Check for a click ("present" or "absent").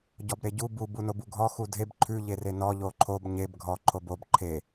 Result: present